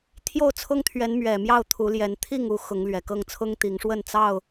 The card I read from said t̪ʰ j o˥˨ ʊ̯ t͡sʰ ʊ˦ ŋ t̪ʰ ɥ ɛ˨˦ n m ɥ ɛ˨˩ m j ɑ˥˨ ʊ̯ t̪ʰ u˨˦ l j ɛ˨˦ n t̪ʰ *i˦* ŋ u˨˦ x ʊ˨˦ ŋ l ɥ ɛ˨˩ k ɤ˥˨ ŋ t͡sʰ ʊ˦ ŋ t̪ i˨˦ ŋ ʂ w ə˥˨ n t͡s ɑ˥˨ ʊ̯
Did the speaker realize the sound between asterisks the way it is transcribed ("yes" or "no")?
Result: no